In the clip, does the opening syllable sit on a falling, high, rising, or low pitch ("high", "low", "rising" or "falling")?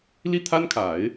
falling